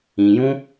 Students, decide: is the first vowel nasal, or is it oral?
nasal